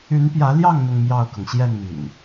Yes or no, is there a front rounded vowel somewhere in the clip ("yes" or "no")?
yes